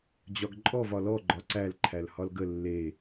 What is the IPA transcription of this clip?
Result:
d͡ʑ ɒ ɡ ǃʼ ɔ v ɒ l ɔ ɡ͡ǃ ɒ ǀ æ l ǃʰ æ l h ɒ l ɡ ə lː e

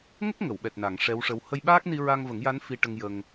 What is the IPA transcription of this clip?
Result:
ŋ ə˦˥ k̚ ŋ ə˨˩˨ w ɓ ɛ˨˩ t̚ n a˨˩˨ ŋ ʂ ɛ˧˥ w ʂ ə˧˥ w h ə˧ j ɓ aː˦˥ k̚ n i˧ ɹ a˧ ŋ v ə˨˩˦ ŋ j a˧˥ n f i˧ ʈ ə˧ ŋ j ə˧ ŋ

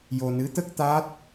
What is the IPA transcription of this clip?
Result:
j o˧ n ɨ˧˥ t̪ ə˦˥ k̚ t̪ a˦˥ t̚

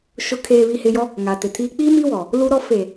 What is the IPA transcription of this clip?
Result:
ʃ ʊ˨ kʰ eː˨ β i˨ h ɪ˨ j ɔ˦ | ŋ a˨ t ɪ˨ tʰ iː˦ k͡p i˦ m i˦ w ɔ˨ | l u˦ ɾ ɔ˦ f e˨

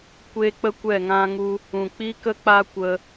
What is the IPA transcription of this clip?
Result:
kʷ e˦ k͡p ə˦ kʷ ɛ˦˨ ŋ ã˦ ŋ u˦ | ũ˨ k͡p i˦ k ə˦ k͡p a˦ kʷ ə˧

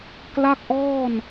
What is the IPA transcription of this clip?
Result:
k l a˥˩ k̚ ʔ ɔː˥˩ n

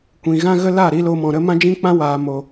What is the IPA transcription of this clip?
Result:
kʷ ĩ˨ ɣ ã˦ ɣ ə˦ l a˦˨ ɾ i˧ l o˧ m ɔ̃˨ ɾ ə˦ m ã˦ d͡ʒ ĩ˦ k͡p ã˦ w aː˨ m o˨

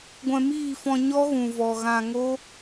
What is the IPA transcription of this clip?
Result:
ɡʷ ɛ̃˧ m iː˦˨ f ɔ̃˧ ɲ ɔ˦ ɣ ũ˨ v ɔ˨ ɣ ã˧ ŋ o˦

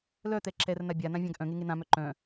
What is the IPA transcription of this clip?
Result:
l œ t̪ ɛ ǁ ɛ r n a bʲ a n ã vʲ ã ɡ ʔ œ̃ ŋ e ŋ e n̪ ã m œ ǃ œ̃

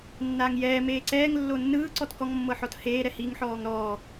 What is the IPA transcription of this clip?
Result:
nː aː ŋ j ɛː m eː ǀ ɛː ŋ lː o nː ɯː ǀ ɔ t k ɔ ŋ mː ɤ ħ ɔ t h eː ɾ ɛ h i ŋ ħ ɔː ŋ ɾ ɔː

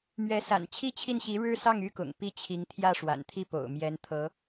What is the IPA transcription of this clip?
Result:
m ɥ ɛ˧˥ s a̰˨˩ n t͡ɕʰ i˥ t͡ɕʰ i˥˩ n ɕ i˧˥ ɻ ɻ̩˥ s ɑ˥˩ ŋ y˥ k ʊ̰˨˩ ŋ p i˥˩ t͡ɕʰ i˧˥ ŋ t̪ʰ j ä˥˩ ʂ w a̰˨˩ n t̪ʰ i˥˩ p o̰˨˩ ʊ̯ m j ɛ˧˥ n t̪ʰ ɤ˧˥

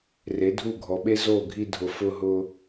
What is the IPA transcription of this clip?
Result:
r e˨˦ dʱ u˦˨ ɡʱ ɔ˨ ɓ e˦ z o˦˨ ɡʱ i˧ dʱ ʊ˨ f ʊ˧ ɦ ʊ˧

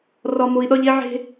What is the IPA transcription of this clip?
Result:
r ɒ˨ m o˨ i̯ ɗ ɒ˦ ʎ e˦ ʕ e̤˦

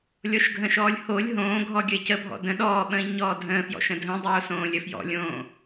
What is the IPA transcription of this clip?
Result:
lʲ ɔ ʃ ɡʱ ə̃ ʃ ɔː lʲ h o lʲ ɦ õː ɡʱ ɔ ɡʲ ə e̯ c ə bʱ ɔ̰ d ə̃ ɗ ɔː ɓ ə̃ː ʎ ɲ ɔː dʱ ə̃ː f j ɔ̰ ʃ ə̃ dʱ ə̃ dˤ oː s õː lʲ ə f j ɔ̰ lʲ õː

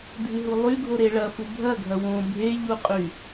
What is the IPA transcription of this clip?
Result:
dʱ ɨ ɦ u lˠ y ɡʱ o ɾ e ɭ ɐ f u bʱ ɐ ɡʱ ɐ w õ bʱ e ʎ u qʼ y

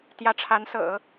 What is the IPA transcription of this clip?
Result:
t̪ j ä˧˥ ʈ͡ʂʰ a˧˥ n s ɤ̰˨˩˦

